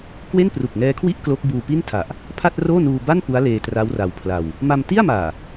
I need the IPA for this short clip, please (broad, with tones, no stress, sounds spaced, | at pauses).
k w e˥˩ n p r u˨˩ k̚ ŋ ɛː˦˥ kʰ w i˥˩ ʔ k l o˦˥ k̚ b uː˧ p i˥˩ n tʰ a˨˩ ʔ | pʰ a˥˩ t̚ r oː˥˩ n uː˧ b a˥˩ n p u˦˥ a̯ l eː˧ t r a˦˥ w r a˧ w pʰ l a˧ w | m a˧ m t i˥˩ a̯ m aː˨˩